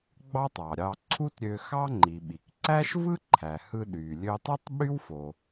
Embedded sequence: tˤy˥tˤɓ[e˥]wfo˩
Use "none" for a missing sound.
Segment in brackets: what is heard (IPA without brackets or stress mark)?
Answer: y˥